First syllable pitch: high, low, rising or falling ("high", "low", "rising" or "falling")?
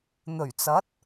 low